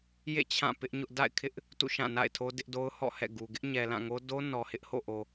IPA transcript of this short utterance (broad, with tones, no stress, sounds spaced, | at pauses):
j ḛ˦˨ t͡ɕʰ ã˦˨ p ɪ˦ ʔ ɲ ʊ˦ ʔ d a̰˦˨ ɪ̯ kʰ ɪ˦ ʔ | t ṵ˦˨ ʃ ã˦˨ n a̰˦˨ ɪ̯ tʰ o˦ d ɪ˦ ʔ d o˦ ʊ̯ h ɔ̰˦˨ h ɛ̰˦˨ ɡ u˨ ɡ ɪ˦ ʔ ɲ ɛ˨ l ã˦˨ ŋ o˦ d o˦ n ɔ˨ h ɪ˦ ʔ h o̰˦˨ ʔ o˨